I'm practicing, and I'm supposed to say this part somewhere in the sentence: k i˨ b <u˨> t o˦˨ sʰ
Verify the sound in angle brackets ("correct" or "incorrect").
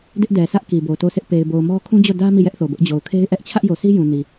incorrect